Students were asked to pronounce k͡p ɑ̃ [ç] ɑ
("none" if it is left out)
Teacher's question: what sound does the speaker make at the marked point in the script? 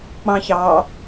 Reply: ç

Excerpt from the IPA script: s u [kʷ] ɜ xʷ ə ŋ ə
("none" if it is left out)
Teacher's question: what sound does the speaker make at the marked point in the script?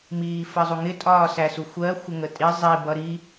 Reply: xʷ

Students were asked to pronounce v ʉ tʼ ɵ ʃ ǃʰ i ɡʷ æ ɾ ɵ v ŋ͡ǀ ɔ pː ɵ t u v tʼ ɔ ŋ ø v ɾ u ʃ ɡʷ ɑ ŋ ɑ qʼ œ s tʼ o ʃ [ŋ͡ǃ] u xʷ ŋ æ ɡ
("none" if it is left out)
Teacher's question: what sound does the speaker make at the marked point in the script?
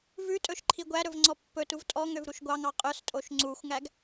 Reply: ŋ͡ǀ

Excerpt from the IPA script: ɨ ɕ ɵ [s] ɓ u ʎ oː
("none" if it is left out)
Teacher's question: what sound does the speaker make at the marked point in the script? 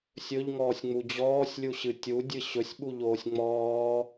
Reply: sʲ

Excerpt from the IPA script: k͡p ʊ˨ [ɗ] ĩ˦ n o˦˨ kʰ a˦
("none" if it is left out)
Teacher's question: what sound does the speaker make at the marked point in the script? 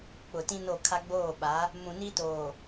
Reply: t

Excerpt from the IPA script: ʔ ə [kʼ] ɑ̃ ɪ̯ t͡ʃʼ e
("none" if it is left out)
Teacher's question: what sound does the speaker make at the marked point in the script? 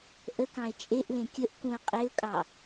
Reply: k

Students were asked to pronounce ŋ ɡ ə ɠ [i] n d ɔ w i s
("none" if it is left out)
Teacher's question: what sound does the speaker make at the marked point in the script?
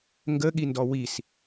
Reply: i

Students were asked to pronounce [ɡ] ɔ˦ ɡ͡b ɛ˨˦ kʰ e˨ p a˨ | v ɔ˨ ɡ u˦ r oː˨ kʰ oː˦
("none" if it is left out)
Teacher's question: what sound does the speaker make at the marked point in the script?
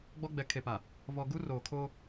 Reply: ɡ͡b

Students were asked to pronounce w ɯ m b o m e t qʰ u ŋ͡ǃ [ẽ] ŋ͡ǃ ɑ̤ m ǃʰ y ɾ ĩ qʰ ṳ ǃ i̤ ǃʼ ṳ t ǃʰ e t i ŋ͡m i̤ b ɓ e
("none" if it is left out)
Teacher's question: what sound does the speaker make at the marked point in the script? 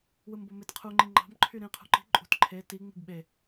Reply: ĩ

